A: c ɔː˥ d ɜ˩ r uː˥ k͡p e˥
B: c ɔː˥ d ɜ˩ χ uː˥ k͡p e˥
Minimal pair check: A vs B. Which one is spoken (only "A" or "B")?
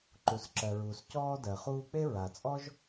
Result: B